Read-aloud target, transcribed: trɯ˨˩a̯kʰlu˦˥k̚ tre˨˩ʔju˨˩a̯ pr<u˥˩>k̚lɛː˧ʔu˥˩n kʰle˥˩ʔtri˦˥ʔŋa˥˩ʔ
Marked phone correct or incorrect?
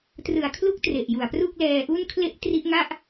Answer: correct